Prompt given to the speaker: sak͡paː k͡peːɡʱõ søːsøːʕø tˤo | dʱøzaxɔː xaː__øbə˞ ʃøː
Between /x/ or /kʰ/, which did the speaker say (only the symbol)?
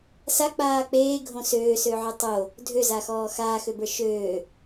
x